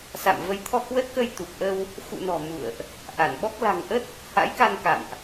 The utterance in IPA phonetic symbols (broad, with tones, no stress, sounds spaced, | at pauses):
s a̰˧˨ m v ə˨˦ j t̪ʰ ɔ˧ k w ə˦˥ t̚ k ə˧ j t̪ u˨˩ p̚ ʔ ə˧ w | x ṵ˧˨ n ɔ̤˨˩ m ṵ˧˨ ə̯ ʔ | ʔ a˧˩ n ɓ ɔ˦˥ k̚ l a̤˨˩ ŋ ʔ ə˦˥ t̚ | h a̰˧˥ j k a˧ n k a̰˧˨ m ʔ